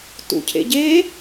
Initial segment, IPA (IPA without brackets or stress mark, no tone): t